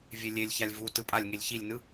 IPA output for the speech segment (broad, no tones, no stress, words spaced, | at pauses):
vʲelʲelʲçalʲ vu tɯpʼalʲŋelʲ çilʲnɯ